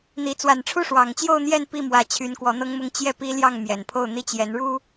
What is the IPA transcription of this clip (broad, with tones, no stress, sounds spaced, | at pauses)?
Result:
n̪ i˧˥ t͡s w a˨˩ n ʈ͡ʂʰ u˥˩ ʂ w ɑ˨˩ ŋ t͡ɕ j o˥˧ ʊ̯ n̪ j ɛ˥˧ n p i˥˩ m w ä˧˥ t͡ɕʰ y˧˥ n k w ɔ˧˥ n̪ ɤ˥ ŋ m ʊ˥ ŋ t͡ɕ j ɛ˥˩ p i˥ l j ɑ˥˩ ŋ m j ɛ˨˩ n pʰ o˥˩ ʊ̯ n̪ i˥ t͡ɕ j ɛ˧˥ n ɻ u˥